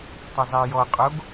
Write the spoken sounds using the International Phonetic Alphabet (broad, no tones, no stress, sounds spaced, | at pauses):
tˤ ə zˤ ɛ j ɔ qʼ o ɡ